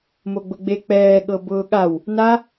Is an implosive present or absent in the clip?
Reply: present